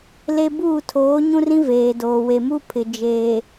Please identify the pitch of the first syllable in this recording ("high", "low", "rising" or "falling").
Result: high